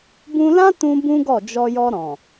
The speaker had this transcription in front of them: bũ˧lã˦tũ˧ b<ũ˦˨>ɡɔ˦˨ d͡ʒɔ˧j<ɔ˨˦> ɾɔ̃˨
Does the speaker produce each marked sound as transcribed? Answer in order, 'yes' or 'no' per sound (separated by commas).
no, no